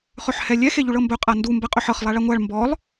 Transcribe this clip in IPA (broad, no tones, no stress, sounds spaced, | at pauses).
χ ɵ ħ h ɛ lʲ ɛ x e ʎ u ɭ ɤ m b ɵ qʼ a n d u m b ɛ qʼ ɵ ħ ɤ χ lˠ a ɭ a ŋʷ a ɭ m b ɔ lˠ